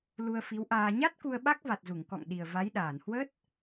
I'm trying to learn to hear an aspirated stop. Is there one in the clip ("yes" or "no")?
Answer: no